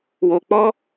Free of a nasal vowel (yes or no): yes